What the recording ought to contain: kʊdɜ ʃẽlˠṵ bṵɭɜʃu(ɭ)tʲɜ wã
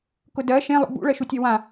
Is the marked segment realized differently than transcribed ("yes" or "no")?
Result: yes